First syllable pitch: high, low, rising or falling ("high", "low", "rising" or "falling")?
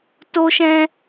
high